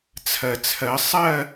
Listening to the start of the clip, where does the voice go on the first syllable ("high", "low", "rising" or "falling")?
low